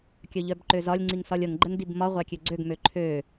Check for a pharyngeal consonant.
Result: absent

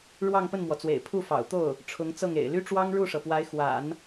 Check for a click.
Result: absent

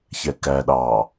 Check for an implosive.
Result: present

